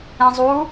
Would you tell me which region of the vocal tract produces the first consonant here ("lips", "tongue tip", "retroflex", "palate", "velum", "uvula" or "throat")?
tongue tip